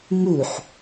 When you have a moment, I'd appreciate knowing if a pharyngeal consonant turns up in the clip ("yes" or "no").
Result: yes